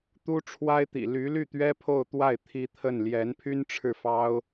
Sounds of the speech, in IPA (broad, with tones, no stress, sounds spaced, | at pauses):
t̪ u˥ ʈ͡ʂʰ w a˥ ɪ̯ t̪ ḭ˨˩ l y˧˥ l y˥˩ t̪ ɥ ɛ˥ pʰ o˥˧ ʊ̯ t̪ w a˥˩ ɪ̯ t̪ʰ i˧˥ t̪ʰ ə˥˩ n l j ɛ˧˥ n pʰ y˥ n ʈ͡ʂʰ ɻ̩˥˩ f ɑ˥ ʊ̯